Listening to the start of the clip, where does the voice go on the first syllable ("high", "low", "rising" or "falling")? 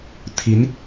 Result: rising